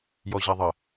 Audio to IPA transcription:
jɔʑaðˤə

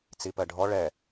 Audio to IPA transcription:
t͡sipɜɖʱɔ ɭɛ

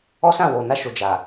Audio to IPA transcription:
ɔ˦sã˦˨ wo˨ na˧ʃo˨ d͡ʒa˨

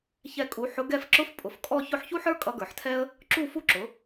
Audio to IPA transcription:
çɛ˥˧kʼu˧˥ ħʊ˧˥ɡɛ˥˧f ǁʊ˥f pʼʊ˩˥fkʼɔ˥˧ çʊ˥˩ħçu˥ħə˞˥ kʼʌ˧˥ɡə˞˧˩˧ħtʰɛ˥ə̯ | ǁu˥˧fu˥ǁʊ˩˥

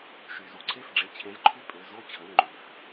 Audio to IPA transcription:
ʃy˩zu˩ǀʰe˥˩fɖ͡ʐe˩˧˩ t͡ɕʰẽ˨˥zǃʰy˥˩pʼø˩˧˩ zo˥˩t͡ɕʰə˩˧˩nŋ͡ǃy˩f

